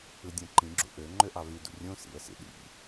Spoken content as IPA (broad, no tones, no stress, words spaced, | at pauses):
ɯdʲõǃĩɡ͡ǁṵ ʔø ŋ͡ǃøʔɑvydṵ rʲõ sḭə̯sḭ ɗḭ